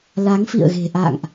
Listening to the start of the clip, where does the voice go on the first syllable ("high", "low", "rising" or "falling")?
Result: rising